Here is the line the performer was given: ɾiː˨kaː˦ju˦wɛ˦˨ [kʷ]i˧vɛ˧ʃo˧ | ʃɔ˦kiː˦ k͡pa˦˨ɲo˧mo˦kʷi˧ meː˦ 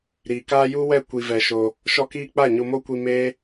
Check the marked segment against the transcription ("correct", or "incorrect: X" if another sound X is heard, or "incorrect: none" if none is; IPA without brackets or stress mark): correct